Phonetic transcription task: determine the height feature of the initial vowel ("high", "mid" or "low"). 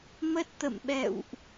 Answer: mid